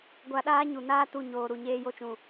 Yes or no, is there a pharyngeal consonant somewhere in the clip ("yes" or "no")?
no